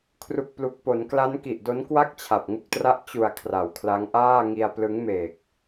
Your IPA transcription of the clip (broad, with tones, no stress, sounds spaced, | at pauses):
kʰ r u˨˩ k̚ p l u˨˩ k̚ p o˩˦ n k l a˦˥ n k i˨˩ ʔ d o˦˥ n k w a˥˩ k̚ t͡ɕʰ a˨˩ p̚ ŋ u˥˩ k̚ t r a˥˩ ʔ t͡ɕ u˨˩ a̯ kʰ r a˩˦ w kʰ l a˦˥ ŋ ʔ aː˥˩ ŋ i˧ a̯ p l ɯ˦˥ ŋ m e˨˩ k̚